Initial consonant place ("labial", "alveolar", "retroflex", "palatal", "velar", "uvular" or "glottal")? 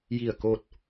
palatal